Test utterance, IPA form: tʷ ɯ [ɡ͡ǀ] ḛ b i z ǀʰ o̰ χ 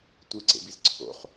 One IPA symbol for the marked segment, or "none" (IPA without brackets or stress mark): ǀ